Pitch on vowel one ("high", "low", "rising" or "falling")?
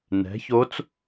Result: rising